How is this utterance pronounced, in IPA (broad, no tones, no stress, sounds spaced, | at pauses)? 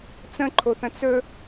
t͡s ə̃ ǃʰ o θ ə̃ t͡s ɵ